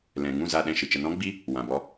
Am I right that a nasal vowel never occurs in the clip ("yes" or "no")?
no